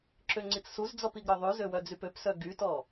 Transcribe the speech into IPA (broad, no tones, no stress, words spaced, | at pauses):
ǁøŋ͡ǀit͡ssuzd͡zɔp iɡɾœðˤʉzø wœd͡zypøpsœ ɡytɔ